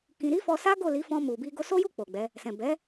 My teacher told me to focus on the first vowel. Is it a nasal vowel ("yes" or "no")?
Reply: yes